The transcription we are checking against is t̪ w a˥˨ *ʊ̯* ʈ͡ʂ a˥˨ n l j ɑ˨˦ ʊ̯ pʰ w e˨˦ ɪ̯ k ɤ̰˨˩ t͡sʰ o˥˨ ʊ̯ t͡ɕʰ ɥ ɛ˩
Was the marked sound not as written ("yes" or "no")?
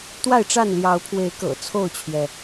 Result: yes